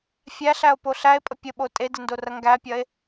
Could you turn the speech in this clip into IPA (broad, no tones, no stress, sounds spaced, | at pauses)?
fʲ æ ɬ æ o̯ p o ɬ æ e̯ pʼ ə pʲ ə ɓ o tʼ e d ə n d o r ɐ ŋ ɡ æ pʲ ɐ e̯